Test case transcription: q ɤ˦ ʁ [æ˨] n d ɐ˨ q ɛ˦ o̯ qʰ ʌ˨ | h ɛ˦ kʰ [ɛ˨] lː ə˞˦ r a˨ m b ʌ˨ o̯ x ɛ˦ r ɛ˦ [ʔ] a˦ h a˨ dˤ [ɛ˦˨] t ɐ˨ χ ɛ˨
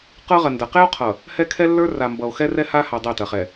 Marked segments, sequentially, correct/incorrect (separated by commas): incorrect, incorrect, incorrect, correct